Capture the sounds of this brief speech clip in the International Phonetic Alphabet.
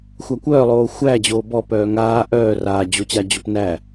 xʷ a kʷ œː lˠ oː xʷ æ d͡ʑ oː b ɔ p œː ŋ aː ʔ œː r aː d͡ʑ o t͡ɕ a d͡ʑ o p n æ

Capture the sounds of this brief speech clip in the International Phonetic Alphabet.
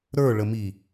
ɾ ə˞ ɭ ə m i

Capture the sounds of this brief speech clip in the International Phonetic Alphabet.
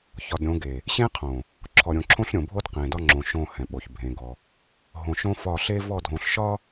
ç ɒ˨ d ɾʲ õ˨˦ ɡ e˨ | ɕ ẽ˦ qʰ õ˨ | ǁʰ ɔ˨ ɾʲ õ˨ ǁʰ õ˦ ɬ ɾʲ õ˨ bʱ o˦ d q ẽ˨ d ɒ˦ ŋ͡ǁ õ˨ ʃ õ˦˨ h ɛ̃˨ ɓ o˨ ç bʱ ẽ˨˦ ɡ ɔ˦ | ɦ õ˨ ʃ õ˦ f ɒ˦˨ ɬ e˦ v ɔ˦˨ dʱ õ˨ ɬ ʃ ɒ˦

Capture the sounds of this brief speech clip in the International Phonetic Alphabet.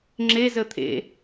ŋ͡ǁ e z ə t̪ʰ ḛ

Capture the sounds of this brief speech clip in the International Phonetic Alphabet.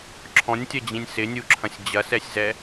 ǁʰ ɔ̃ nʲ tʲ ɐ d͡ʑ ĩ nʲ s ɪ nʲ u ǁʰ ɐ̃ sʲ d͡ʑ ɐ s ɛ sʲ z ɛ

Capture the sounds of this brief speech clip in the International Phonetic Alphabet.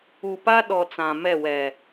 u˨ p a˦ ɗ ɔ˨ t͡s ã˨ m ɛ˦˨ w ɛ˨

